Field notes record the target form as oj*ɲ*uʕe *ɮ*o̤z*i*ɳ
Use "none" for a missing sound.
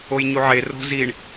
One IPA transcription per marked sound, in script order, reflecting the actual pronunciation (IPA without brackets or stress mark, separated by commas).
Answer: ɲ, r, i